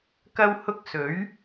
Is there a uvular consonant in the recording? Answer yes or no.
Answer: no